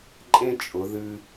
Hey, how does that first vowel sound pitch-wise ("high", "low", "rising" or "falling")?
high